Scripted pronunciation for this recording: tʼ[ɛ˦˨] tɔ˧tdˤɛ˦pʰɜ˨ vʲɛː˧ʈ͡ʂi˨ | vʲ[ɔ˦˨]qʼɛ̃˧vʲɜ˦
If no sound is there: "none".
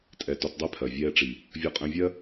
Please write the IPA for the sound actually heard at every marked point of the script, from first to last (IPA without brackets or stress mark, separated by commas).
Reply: ɛ˨, ɔ˧